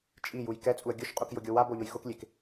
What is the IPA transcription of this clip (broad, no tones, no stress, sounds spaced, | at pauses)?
t͡ʃʼ i j u j k ɛ t͡sʼ u ə̯ ɡʲ ʊ ʃ qʼ u k j ʊ ɡʲ o w a b o ʎ ʊ j x ʊ k lʲ e k